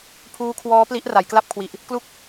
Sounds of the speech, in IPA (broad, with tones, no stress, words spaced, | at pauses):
pʰuː˦˥kʰwɔː˦˥pli˦˥ʔ ra˩˦jkla˥˩p̚kʰwi˨˩ʔ | klu˦˥k̚